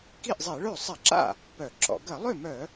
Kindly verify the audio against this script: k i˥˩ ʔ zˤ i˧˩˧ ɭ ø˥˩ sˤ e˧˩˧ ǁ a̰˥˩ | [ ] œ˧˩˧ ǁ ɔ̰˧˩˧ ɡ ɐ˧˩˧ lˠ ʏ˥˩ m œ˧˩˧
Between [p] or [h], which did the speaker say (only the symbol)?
p